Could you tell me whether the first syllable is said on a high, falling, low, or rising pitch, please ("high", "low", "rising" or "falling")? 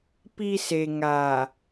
low